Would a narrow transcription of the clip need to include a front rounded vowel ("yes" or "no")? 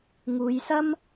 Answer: no